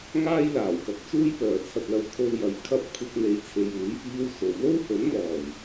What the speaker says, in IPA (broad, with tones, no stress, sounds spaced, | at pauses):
ŋ aː˥ j l aː˨˩ w k ɐ˨˥ k̚ t͡s uː˥ j p œː˨˩ t͡sʰ ɐ˨ t̚ l ɐ˨ w kʰ o˧ w j ɐ˨˧ j kʰ ɐ˥ p̚ kʷʰ ɐ˧ k̚ n̪ e˨˧ j t͡sʰ e˨ j uː˨˥ j f iː˥ w s o˨˧ w l o˥ w h ɵ˨˥ n m ɔː˨˩ j